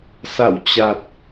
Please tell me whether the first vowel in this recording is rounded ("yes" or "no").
no